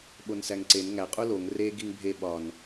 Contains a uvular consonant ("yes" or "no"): yes